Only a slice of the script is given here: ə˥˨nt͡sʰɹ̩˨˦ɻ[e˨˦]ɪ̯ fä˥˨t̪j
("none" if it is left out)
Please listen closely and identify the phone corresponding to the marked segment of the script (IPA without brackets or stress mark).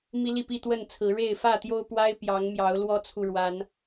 e˥˨